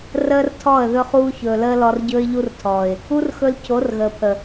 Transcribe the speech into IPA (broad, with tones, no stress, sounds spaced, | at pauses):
r əː˦ r tʰ ɔ˦˨ ə̯ ð ɵ˧ χ uː˧ ç ɵː˨ l əː˧ l ɔ˧ r ɟ ɵː˦ ɪ̯ ʎ u˦ r tʰ ɔː˨ ɪ̯ | u˦ r x ɵ˧ l cʰ o˨˦ r ɣ əː˨ pʰ ə˨